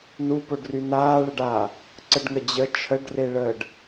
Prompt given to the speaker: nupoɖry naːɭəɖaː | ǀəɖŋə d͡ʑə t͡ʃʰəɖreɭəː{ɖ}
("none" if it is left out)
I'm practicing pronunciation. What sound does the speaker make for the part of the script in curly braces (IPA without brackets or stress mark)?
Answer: ɖ